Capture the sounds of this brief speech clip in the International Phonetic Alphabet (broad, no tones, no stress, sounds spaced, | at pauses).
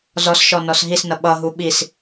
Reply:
z ɔ s ʃ ɔ n ɔ s ɦ i s n ʌ ɓ ʌ ɦ u ɓ i s